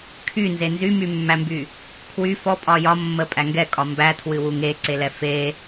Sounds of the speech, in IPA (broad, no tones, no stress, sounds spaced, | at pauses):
kʰ y n z e n z y m y mː æ m b y | kʰ w y f ɔ pʼ ɒ j ɒ mː ə pʼ æ ŋ ɡ ɛ kʼ ɒ m b æ tʰ w ɨ w u ŋ e ǀ e l ɛ f e